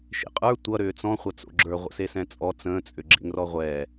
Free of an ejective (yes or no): no